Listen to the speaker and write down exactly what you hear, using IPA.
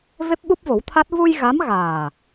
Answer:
v e˦˥ p̚ ɓ u˦˥ p̚ v o˨˩˦ w t̪ʰ a˦˥ t̚ v u˧ j ɣ a˧˥ m ɣ aː˨˩

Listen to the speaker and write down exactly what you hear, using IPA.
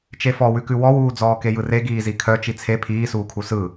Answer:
t͡ʃ e f ɔ w ʉ k ʉ w ɔ w uː d͡z ɔː k e j ɯ r e ɡ iː z i kʰ œ t͡ʃ i t͡sʰ e pʰ iː s uː kʰ u s ɯ

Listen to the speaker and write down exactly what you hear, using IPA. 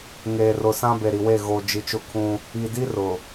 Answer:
ŋ eː˨ r ʊ˨ s ã˦ b e˨ ɾ i˨ w e˦˨ ɣ o˨ d͡ʒ i˨ t͡ʃ ʊ˦ kʰ ũ˦ | i˨ d i˦ r ʊ˨

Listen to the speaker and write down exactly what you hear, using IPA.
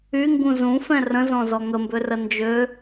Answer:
y ŋ ɡ ũ z ũ f ɛ̃ r ə̃ z ɔ̃ z ɔ ŋ ə m b ø r ə n d͡ʒ ø

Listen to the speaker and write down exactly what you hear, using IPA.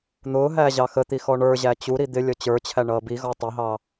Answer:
n̪ ʊː ɦ æː ʑ ɑ x ə t̪ i x ɔ ɳ ə˞ ʑ æ t͡ɕ u ɾ i d̪ ɪ lʲ ʌ t͡ɕ ə˞ t͡ɕʰ æ ɳ ʌː b i ɣ ɔ tˤ ʌ ɦ ɑ

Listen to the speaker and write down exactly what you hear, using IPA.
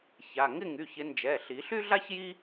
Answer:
ç a˩˧˩ ŋ ɪ˥˨ ŋ y˩˧˩ ç ɪ˨˦ n d͡ʒ ɛ˩˧˩ ɬ i˨˩˦ ɬ y˥ ɮ a˥ ç j i˥

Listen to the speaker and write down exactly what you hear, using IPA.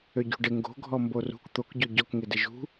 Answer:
ø ɟ ṳ ɖ ɪ ŋ ɡ o̤ ɡʱ ɔ m b o r ṳ k t̪ o k ɟ o ɟ ɔ k ŋ ɪ d ɪ ʒ ṳ

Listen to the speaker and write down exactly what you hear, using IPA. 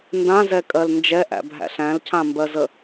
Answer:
n d ã z ɛ kʼ ɜ l n d͡ʒ ɛ ʔ æ̰ bʱ æ̰ ɬ æ̃ l cʰ ã m b ɜ z ə

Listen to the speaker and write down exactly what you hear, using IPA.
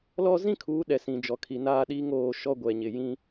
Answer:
l ɔ˦ z ĩ˦ kʰ uː˨˦ ɗ ɛ˨ s ĩ˨ d͡ʒ ɔ˨ kʰ i˨ n aː˦˨ ɗ iː˦ ŋ oː˦˨ ʃ ɔ˦ ɡʷ ɛ˨ ɲ ɪ˨ j ĩ˦

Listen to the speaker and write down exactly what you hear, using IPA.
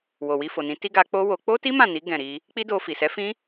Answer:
w o˨ w i˧ f o˨ n ĩ˨˦ t i˦ ɡ a˧ k͡p o˦ w o˧ k͡p o˦ t i˦ m ã˦˨ n i˨˦ ɡ ɛ̃˦˨ ɾ i˧ | k͡p i˦ d o˧ f i˨ s ɛ˨˦ f ĩ˦

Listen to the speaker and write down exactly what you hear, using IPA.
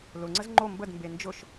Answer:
l ʊ ŋ͡ǀ ə z ŋ͡ǃ o m b ə d m b e n d͡ʒ ʊ ʃ

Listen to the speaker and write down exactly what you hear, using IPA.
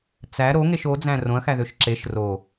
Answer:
t͡s æ ɾ o ŋ e ʃ o d͡z æ̃ r õ ɐ̯ x æ ð ø ʃ ǁ e ʃ r o

